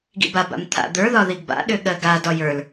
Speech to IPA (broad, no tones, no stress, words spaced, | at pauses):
ɡḭbaba̰m t̪ʰa̰d̪ə˞ðɒ ðiɡba̰ɗʏ ɠɜɡadɒ jə˞l